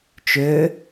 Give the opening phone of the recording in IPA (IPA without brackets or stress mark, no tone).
t͡ʃ